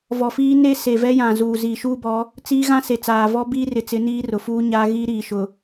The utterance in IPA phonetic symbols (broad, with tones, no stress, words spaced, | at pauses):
vɔ˨fiː˦ ne˦se˨vɛ˦jã˨ zuː˨zi˨ ʃuː˦bɔ˨˦ | t͡siː˦ ɣã˦se˨t͡saː˨ vɔ˦biː˦rɪ˨t͡sɪ˨˦ niː˦rʊ˨fuː˦ɲaː˦ ɣiː˦ ɾiː˨ʃʊ˨